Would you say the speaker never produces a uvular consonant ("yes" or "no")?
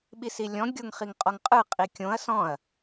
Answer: no